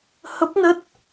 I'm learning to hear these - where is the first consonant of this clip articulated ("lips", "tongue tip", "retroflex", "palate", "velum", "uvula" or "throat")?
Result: throat